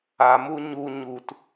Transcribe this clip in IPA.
a m u ɲ u ɲ u t

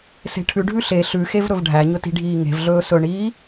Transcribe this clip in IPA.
s e̤ ʈʰ ʉ ɖʱ ʉ ɬ e ɬ ʉ x e v ɾ ɵ v ɖʱ æ ɲ ɵ t i̤ ɖʱ iː ŋ e̤ v ɮ ɵː s ɵ ɳ iː

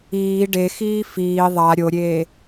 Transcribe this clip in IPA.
iː ɖ e x iː f iː ðˤ a ɾʲ o ɾʲ eː

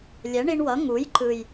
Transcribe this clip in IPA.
lʲ ɛ˩˥ ɳ i˧ ɳ w ʌ˩˥ ŋ u˩˥ j ǃ ɯ˨˩ j

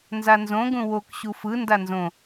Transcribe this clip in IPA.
n z a n z õ ɡ ũ w o k ɕ u f ɯ n d a n z õ

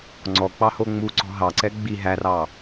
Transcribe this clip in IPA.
ŋ͡ǀ ɔ k͡p ɑ h o ŋ͡m u ǀ ɔ̤ ɦ ɑ ǀ ɛ ɡ͡b i ɦ æ r ɑ

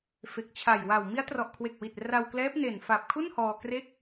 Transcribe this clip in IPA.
f e˨˩ k̚ t͡ɕʰ a˨˩ j w a˨˩ w m i˦˥ a̯ t r ɔ˨˩ ʔ kʰ w e˨˩ k̚ w i˨˩ t̚ r a˧ w k l ɛː˦˥ p̚ n e˨˩ n f a˨˩ p̚ kʰ u˥˩ n h ɔː˧ k r e˥˩ k̚

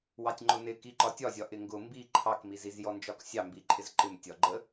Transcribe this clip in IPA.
w ɑ tʲ ŋ͡ǃ ʊ n ɪ k i ǃ ɒ tʲ ɒ zʲ ɒ ʔ ɪ ŋ ɡ ʊ m b i ǃʰ ɑ k m i z i z j ɔ n d͡ʒ ɒ k sʲ ɑ m b i ǃʼ ɪ z ǃ ɪ m tʲ ɒ ɡ͡ǃ ə

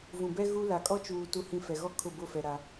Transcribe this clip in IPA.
v ũ˨ b ɛ˦ ɣ u˦ l a˨ kʼ ɔ˦ t͡ʃ uː˨ t u˨ h ĩ˨ f ɛ˨ ɣ ɔ˦ kʰ ʊ˦˨ b ʊ˦˨ f ɛ˨ ɾ a˦

